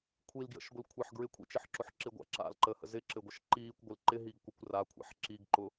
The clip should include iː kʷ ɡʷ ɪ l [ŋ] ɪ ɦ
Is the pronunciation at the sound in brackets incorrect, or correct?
incorrect